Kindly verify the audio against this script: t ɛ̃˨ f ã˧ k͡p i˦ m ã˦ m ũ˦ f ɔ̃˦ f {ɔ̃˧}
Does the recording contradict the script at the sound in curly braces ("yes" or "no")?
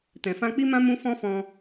no